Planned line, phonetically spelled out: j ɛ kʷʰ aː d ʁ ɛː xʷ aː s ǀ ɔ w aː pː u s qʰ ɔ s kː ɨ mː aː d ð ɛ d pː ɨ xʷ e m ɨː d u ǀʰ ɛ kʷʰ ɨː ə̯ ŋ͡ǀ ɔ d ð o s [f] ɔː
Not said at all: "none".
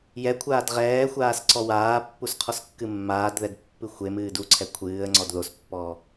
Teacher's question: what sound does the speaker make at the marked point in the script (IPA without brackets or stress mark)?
pː